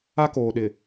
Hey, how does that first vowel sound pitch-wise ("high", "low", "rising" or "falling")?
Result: high